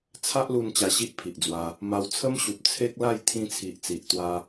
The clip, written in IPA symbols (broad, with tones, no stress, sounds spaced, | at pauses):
t͡sʰ a˦ ʔ l u˧ n t͡ɕ a˧ ɕ i˦ ʔ pʰ i˨ ʔ d͡z w a˧ | m a˧ w t͡sʰ ə˦ m ɕ u˨ p̚ t͡sʰ e˦ k̚ l a˥˧ j t̪ʰ ĩ˧ t͡sʰ i˨ ʔ t͡s i˨ ʔ t̪ w a˦